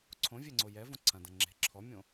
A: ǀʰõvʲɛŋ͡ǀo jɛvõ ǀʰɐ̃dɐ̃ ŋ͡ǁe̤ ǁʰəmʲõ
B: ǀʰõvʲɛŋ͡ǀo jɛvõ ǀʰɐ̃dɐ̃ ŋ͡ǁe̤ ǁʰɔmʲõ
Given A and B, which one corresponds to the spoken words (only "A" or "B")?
B